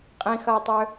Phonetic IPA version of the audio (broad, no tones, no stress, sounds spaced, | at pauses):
qʼ ĩ x ɐ i̯ tˤ ø